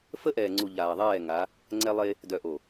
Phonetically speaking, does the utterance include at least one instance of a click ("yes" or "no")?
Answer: yes